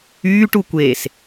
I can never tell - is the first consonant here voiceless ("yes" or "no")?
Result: yes